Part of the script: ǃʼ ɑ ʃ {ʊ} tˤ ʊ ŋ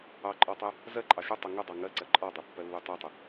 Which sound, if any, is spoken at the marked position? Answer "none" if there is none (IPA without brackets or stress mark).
ʊ